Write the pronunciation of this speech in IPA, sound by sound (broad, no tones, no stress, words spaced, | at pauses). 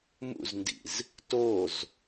mṵzndḭz | toz